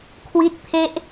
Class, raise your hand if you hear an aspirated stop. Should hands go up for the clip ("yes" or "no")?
yes